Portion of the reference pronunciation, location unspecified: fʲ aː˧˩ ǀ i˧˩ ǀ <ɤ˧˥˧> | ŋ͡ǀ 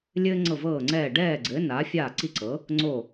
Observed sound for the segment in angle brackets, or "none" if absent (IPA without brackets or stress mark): ɤ˩˧